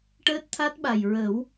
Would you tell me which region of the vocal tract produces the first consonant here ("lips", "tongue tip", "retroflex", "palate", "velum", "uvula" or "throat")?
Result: retroflex